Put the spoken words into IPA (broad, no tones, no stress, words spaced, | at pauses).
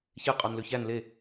çe qʼɔnløçæn le